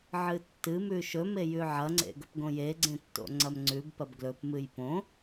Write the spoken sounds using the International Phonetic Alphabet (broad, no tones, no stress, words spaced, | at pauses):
ʕɨtːɨmʉ ʃɵme jʉʕɐŋ͡ǀḛ ɡɵpɡõjeɡ͡ǀẽ tːo̰ŋ͡ǀɐmŋ͡ǀʉbpɐb ɡlɵpmɨj põ